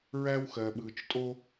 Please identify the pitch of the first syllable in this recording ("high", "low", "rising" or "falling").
high